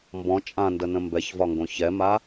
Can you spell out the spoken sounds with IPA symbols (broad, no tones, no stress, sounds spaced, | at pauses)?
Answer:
m b ɔ̃ t͡ʃʼ ã n d ə n ə̃ m b ɛ ç v ɒ ŋ ɡ õ ç ɛ m a